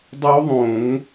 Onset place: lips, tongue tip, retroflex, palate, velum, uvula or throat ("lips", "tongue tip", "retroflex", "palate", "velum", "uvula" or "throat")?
tongue tip